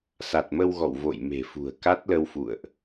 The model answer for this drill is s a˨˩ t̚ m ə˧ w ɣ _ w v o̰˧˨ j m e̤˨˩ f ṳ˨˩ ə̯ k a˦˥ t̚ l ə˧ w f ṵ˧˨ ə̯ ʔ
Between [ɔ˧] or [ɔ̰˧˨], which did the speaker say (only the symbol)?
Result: ɔ̰˧˨